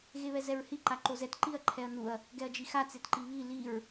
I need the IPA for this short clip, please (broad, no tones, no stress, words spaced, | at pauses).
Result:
ɣeβɛzɛɹhi ǃaǃozɛt ǃiɐ̯ǃʰɛɐ̯nuɐ̯ | ɡɛɐ̯d͡ʒixa t͡setǃiβi liɹ